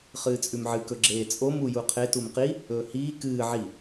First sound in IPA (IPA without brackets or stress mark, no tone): χ